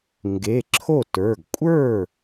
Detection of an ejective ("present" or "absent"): present